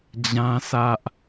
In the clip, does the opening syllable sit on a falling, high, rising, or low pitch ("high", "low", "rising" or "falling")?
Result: high